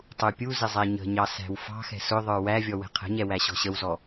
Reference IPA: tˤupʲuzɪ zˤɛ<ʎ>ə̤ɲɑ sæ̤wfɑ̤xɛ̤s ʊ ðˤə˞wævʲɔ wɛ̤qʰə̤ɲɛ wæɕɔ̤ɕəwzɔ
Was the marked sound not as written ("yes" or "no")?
yes